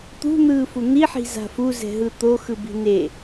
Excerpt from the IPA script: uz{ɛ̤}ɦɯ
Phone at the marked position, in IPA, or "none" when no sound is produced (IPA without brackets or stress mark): ɛ̤